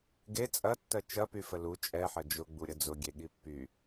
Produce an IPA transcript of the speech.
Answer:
ɡe t͡sʼɐtːɜ t͡ʃɐpy fəlu t͡ʃʼɛħɐ d͡ʒʊɡ͡buɾʲə d͡zʊɡʲe ɠipːy

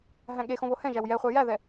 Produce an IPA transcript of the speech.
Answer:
ɦæ̃ɠexõ βohɛ̃ʒæw jɛχʷæ jæðɛ

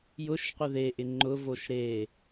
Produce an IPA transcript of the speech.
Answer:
jʊʃqʷɪ ðeʔɪ ŋ͡ǃʊvoʃ ɾe

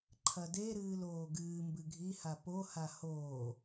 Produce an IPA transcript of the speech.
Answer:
ǃʰɐdeɾɨːl oːɡɨːmbɨ ɡʱiha poha hoː

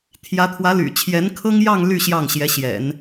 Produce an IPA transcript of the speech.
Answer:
t̪ʰjä˧˥t̪ʰwä˧˥ly̰˨˩ t͡ɕʰjɛ˧˥nkʰɤ˥ŋjɑ˥˧ŋ ly˥˧ ɕjɑ˥˩ŋɕjɛ˧˥ɕjɛ̰˨˩˦n

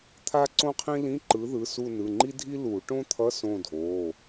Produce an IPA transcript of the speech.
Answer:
t̪ʰa˥ǀõ˥qʰĩ˥ lĩ˧˥˧ǃɯ˨˥ðɯ˩˧˩su˦˨ nɯ˩˧˩ŋ͡ǃi˥dʱi˥ lu˨˩˦ ʈõ˥t̪ʰʌ˧˥˧ sõ˦˨dʱo˩˧˩

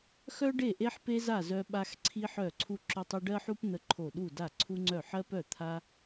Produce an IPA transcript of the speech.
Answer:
xœ˥ɖe˥˨ʔe˥ħ pe˥za˥˨ zœ˥ɓa˥x ǀʰi˥ħœ˥˨ ǀʰu˥ǁʏ˥tˤʏ˥ ɖɜ˥ħu˥p n̪ə˥ǃʰo˥˨ ɗu˥˨da˥˨ ǀʰu˥ŋ͡ǀœ˥˨ ħɜ˥pœ˥˨t̪ʰa˥

